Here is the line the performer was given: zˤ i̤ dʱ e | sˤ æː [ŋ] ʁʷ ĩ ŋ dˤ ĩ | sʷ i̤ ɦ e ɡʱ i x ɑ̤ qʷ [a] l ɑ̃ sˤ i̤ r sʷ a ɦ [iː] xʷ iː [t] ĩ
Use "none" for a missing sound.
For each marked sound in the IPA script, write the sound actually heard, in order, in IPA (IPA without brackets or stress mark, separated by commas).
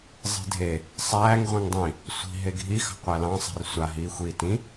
ŋ, æ, iː, t